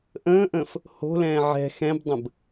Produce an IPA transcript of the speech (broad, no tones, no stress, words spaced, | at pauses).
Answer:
ʔə̃ːʔə̃ːf | ho̤lɛ̃ː ʕɛ̤ xɛ̃bdˤə̃b